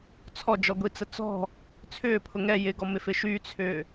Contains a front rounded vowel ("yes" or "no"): yes